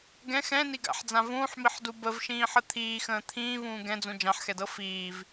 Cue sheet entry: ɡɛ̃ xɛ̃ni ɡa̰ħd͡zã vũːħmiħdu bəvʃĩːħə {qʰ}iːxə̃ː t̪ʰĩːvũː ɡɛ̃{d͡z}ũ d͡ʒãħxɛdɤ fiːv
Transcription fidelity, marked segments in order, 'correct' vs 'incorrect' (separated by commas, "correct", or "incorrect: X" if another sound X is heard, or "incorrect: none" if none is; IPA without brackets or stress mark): incorrect: t̪ʰ, correct